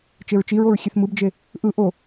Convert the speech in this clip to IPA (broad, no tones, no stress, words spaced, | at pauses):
t͡ʃeɹt͡ʃiɹoɹ xʲeθmɯbd͡ʒe | ʔɯ ʔo